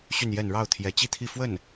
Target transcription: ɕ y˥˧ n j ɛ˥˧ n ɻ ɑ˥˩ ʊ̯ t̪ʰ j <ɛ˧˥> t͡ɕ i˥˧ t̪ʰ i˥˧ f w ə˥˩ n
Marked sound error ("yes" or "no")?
no